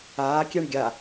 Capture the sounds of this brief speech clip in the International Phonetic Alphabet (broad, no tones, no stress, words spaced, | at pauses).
aːkʲɛɳ ɡʲa